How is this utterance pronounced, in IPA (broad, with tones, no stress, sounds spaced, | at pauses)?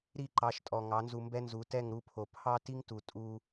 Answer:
ɾ i˦˨ ǃ ɑ˨˦ ʃ tʼ ɔ˨ ŋ ɑ˨˦ n z u˧ m b ɛ˦ n z u˨˦ t ɛ˦˨ ŋ ɾ u˧ pʰ o˨ pʰ ɑ˦ t i˦ ŋ t u˨ tʼ u˧